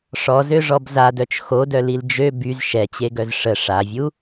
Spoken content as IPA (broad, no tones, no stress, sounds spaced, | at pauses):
ʂ ɔ z ø ʐ ɔ b z a d œ t͡ʃ x o d œ l i l d͡ʒ ø b y z ʃ ɛ t͡ɕ e ɡ œ z ʂ ə ʂ a vʲ u